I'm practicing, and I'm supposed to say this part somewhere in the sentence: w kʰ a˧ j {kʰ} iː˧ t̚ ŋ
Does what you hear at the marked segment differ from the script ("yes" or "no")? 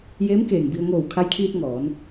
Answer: no